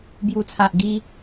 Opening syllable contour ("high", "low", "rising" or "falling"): low